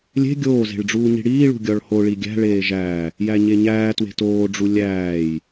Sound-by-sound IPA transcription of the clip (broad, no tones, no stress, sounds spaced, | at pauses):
lʲ e̤ ɡʲ oː z e̤ ɭ ɖ͡ʐ uː ɲ i̤ ɽ iː ɭ ṳ ɡʲ ɒ ɭ h o ɭ i ɡʲ æ̤ ɭ eː ʒ æ | j æ ɲ e ɲ æː t w e̤ t oː ɖ͡ʐ u lʲ æː j